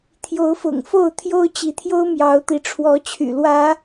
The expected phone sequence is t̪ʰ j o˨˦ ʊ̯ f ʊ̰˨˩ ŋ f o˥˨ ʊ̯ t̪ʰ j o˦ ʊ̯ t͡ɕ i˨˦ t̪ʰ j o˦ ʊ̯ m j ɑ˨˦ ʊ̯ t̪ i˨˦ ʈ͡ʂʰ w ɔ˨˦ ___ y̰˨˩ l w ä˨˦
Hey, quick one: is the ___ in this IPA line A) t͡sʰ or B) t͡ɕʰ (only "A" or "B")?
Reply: B